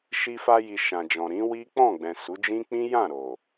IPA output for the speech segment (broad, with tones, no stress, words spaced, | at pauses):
ʃi˧fa˧ji˨ ʃã˨d͡ʒɔ̃˨ɾĩ˨˦wi˦ k͡pɔ̃˦˨ɡ͡bɛ̃˨ su˨˦d͡ʒĩ˦ k͡pĩ˦jã˦˨ ɾo˨